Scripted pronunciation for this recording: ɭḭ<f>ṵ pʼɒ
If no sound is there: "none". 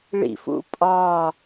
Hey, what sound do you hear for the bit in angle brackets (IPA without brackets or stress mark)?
f